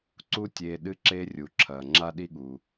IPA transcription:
ǀ u˥ tʲ eː˧ ɗ ɨ˥ ǁ eː˥ rʲ u˩ ǁʰ ɐː˩ ŋ͡ǁ a˥ ɗ i˥ ɠ u˩

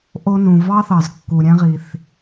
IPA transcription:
ʔ o˧ n ũ˩ v ɑ˥ θ ɑ˩ z kː u˩ ɾʲ æ̃˧ ʁ i˩ θ

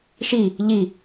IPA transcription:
ʃ i | ʎ i

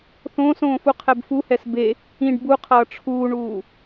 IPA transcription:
θ õː s õː f u qʰ ɛ b f u h ɛ s b e | ĩ ɖ b u qʰ ʌː ʈ͡ʂʰ uː ɳ uː

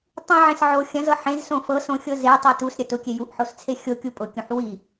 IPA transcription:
tˤ ĩ ʕ ẽ s ʕ o xʲ ɐ̃ z ɤ ħ ẽ z s õ f ɤ s õ xʲ ɤ z e tˤ ɤ t u s ɾʲ ɐ t ʊ kʲ e j u ʔ ħ o s t͡sʰ e xʲ o kʲ u pʼ ʊ kʲ ũ ħ w i

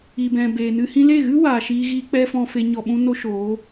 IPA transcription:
i˨ b ɛ̃˨ b eː˨ n ɨ˧ h ĩ˧ l e˦˨ ɣ ɨ˦ w aː˨ ʃ iː˧ ɣ iː˧ k͡p ɛ˦ f ɔ̃˧ f e˧ ɲ ɔ˨ ɓ ũ˧ n o˦ ʃ oː˨˦

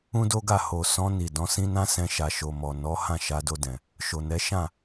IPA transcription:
ũ˦ d o˦ ɡ a˦˨ h o˨ s ɔ̃˧ n i˨ d ɔ̃˨˦ s ĩ˦ n ã˦ s ɛ̃˧ ʃ a˨ ʃ o˨ m ɔ˨ n ɔ˨˦ h ã˦˨ ʃ a˧ d o˧ d ɛ̃˨ | ʃ o˨ n ɛ˨˦ ʃ ã˦˨

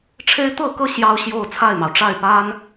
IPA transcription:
ʈ͡ʂʰ e˦ ɪ̯ t̪ ɤ˥˨ k ɤ˥˨ ɕ j ɑ˦ ʊ̯ ɕ j o˥˨ ʊ̯ t͡sʰ a˥˨ ɪ̯ m ɑ˩ ʊ̯ ʈ͡ʂ a˥˨ ɪ̯ p a˦ n

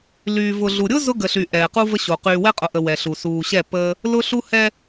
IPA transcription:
l yː˨ v ʊ˨ ɮ u˨ ɾʲ ʊ˦ z ʊ˦ ɡ ə˨ ɬ y˨ ʔ ɛː˨ q u˦ v ə˦ ɕ o˨ q yː˨ w ɛ˦ qʼ ʊ˨ ʔ ə˨ w ɛ˨ ɬ u˨ s uː˨ ɕ ɛ˦˨ p əː˦ | l ʊ˦ ɬ u˦ h ɛ˦

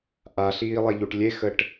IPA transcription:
ʔ a ɬ iː lˠ e ʎ u ʈ lʲ e x ə ʈ

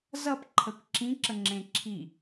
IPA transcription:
z ʌ p ǃʰ ə kʷ ǁ ĩ ǁ ə ŋ͡ǁ ẽ ǁʰ i

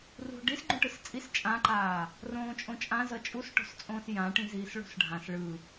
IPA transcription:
r ṳ ɖ i s ɡ͡ǃ ũ ʈ ɯ s t͡sʼ i s t͡ʃʼ ã ǃ aː | r õː t͡ʃʼ õ t͡ʃʼ ã z ʌ t͡ʃʼ u s ʈ o̤ s t͡sʼ õː s j ã ʈ ĩ z iː s ɭ o̤ s ɖʱ ã s ɭ ɯ

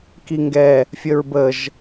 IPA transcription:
k i ŋ ɡ ɛ | fʲ ə ɹ b ə ʒ

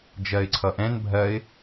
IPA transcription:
d͡ʒ ɜ ɪ̯ ǀʰ ʌ ʔ ɛ̃ n bʱ ɜ ɪ̯

